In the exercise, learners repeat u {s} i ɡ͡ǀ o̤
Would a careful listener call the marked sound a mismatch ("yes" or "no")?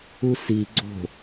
no